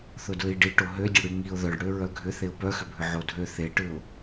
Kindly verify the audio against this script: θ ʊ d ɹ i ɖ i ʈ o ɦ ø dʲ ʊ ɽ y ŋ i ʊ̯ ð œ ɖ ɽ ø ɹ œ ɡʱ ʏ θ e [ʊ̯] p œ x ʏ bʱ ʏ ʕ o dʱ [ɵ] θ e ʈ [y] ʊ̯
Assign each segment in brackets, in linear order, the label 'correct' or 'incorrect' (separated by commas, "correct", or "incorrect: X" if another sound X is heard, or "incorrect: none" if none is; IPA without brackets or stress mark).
correct, incorrect: ø, incorrect: ʏ